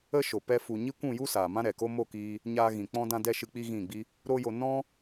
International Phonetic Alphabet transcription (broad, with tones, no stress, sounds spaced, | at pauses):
ə˦ ʃ o˨ p ɛ˧ f u˨ ɲ i˦ kʷ ũ˦˨ j u˦ s aː˨ m ã˦ ɾ ɛ˨ k o˦ m o˦˨ k iː˧ | ɲ aː˧ ɣ ĩ˨ k͡p ɔ̃˧ d ã˧ d ɛ˧ ʃ ɨ˧ k͡p i˦ ɣ ĩ˦˨ ɡ͡b i˦ | ɾ o˦ j o˧ n ɔ̃˦